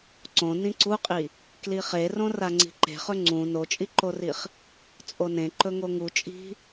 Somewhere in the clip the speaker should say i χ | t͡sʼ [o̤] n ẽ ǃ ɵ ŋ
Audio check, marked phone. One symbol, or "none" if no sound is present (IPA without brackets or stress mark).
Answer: o